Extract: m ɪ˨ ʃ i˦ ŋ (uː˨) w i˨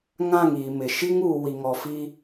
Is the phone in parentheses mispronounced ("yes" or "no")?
no